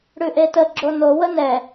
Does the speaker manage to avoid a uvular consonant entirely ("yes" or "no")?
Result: yes